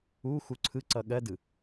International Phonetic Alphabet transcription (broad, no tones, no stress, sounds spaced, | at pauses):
u x u ǀʰ ɯ ǀ ʌ ɠ ɜ d ɯ